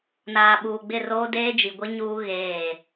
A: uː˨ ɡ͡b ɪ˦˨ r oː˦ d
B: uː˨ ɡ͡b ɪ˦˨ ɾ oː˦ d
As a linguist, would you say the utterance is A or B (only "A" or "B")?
A